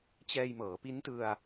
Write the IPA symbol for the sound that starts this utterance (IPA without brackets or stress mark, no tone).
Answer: t͡ɕ